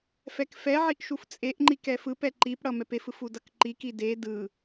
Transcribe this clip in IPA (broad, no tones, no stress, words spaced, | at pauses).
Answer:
fɛkfɛʕiʔ ʃuft͡sʼeʔŋ͡ǃik ɛfɯpɛ ǃipɽʌ mɛpefɯf udʌkǃiki de dɯ